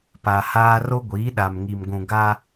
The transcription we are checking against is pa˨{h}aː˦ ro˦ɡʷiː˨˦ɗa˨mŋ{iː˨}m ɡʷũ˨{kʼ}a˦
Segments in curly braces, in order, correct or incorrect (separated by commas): correct, incorrect, incorrect